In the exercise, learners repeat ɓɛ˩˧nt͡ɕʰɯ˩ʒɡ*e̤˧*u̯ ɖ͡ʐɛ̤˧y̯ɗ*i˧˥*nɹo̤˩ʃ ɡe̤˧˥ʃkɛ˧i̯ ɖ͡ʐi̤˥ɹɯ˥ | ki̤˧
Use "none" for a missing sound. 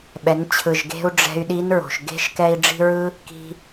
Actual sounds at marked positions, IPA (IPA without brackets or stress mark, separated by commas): e̤˧, i˧˥